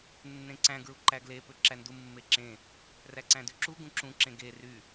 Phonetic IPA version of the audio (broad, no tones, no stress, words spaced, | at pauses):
nːẽǀæ̃ ɡɹuǃæɡle pøǁændu mːeǁẽ | ræǀæ̃dyǁu ɡũǁũ ǁẽɡe ry